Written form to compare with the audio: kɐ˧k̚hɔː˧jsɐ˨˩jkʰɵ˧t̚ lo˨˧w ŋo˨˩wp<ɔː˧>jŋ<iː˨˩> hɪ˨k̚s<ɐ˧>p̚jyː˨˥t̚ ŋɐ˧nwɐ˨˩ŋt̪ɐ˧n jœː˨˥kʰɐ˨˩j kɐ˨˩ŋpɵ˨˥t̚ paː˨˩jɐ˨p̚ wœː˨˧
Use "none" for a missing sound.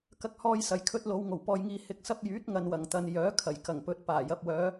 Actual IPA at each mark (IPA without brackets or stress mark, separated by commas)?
ɔː˨, iː˨, ɐ˧